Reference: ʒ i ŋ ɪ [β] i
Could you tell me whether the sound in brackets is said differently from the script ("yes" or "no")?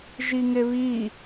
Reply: no